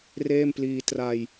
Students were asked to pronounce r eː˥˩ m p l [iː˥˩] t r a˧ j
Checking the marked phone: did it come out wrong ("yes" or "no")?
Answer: yes